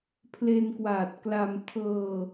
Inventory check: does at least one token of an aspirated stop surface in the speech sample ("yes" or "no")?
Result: yes